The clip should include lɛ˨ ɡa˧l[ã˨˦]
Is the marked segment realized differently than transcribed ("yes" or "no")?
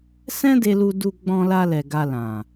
yes